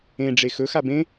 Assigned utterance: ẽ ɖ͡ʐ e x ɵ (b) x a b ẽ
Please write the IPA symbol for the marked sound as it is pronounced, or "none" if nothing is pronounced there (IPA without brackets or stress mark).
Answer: none